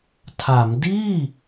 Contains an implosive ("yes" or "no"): no